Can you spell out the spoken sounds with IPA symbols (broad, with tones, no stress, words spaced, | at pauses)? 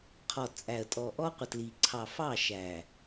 qʰɔ˨t͡sʼæ˨ə̯ tʼɔ˨ʔɔ˦ qʷə˨tli˨ ǀʰɑ˨fɑ˦˨ ʃæ˨